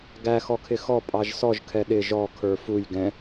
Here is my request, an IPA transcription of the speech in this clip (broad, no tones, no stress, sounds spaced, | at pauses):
ɡ æ x ɔ kʰ ɪ x ɔ pʼ ɑ ʒ s ɔ ʒ kʰ ɛ ɗ ɪ ʒ ɔ kʰ ə˞ f u j ɡ ɛ̃